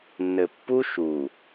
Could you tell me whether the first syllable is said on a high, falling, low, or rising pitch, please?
low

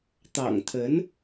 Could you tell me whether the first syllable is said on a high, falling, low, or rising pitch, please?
low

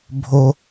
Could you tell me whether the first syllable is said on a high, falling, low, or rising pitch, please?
high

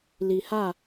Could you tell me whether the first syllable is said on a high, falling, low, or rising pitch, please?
low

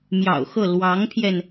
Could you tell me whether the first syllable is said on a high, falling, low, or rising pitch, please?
low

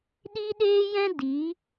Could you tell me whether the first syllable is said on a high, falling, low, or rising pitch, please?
high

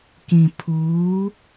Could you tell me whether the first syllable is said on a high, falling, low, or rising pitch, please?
low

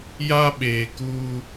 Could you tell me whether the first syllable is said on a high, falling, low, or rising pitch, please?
high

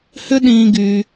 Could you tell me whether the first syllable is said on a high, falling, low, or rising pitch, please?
high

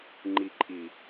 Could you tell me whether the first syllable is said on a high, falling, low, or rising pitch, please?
low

